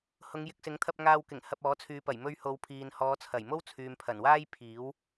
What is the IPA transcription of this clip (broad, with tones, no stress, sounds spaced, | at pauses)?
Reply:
h ʊ˨˧ ŋ j ɪ˨ k̚ s ɪ˨˥ ŋ t̪ʰ ɐ˧ p̚ ŋ aː˧ w k ɪ˨˩ ŋ h ɐ˧ p̚ ɔː˨˥ t͡sʰ yː˨˧ p ɐ˨˩ j m ɵ˧ ɥ h o˨˧ w pʰ iː˨ n h ɔː˨˧ t͡sʰ ɐ˨˩ j m o˥ w t͡sʰ yː˨ m pʰ ɐ˨˩ n w aː˥ j pʰ iː˨˥ w